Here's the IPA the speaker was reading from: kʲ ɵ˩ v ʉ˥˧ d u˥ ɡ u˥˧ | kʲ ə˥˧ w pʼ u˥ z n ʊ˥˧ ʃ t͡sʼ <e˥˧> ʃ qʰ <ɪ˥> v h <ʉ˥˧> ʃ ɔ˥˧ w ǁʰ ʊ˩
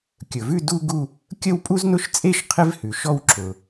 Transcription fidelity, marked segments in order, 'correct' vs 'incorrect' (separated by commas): correct, correct, incorrect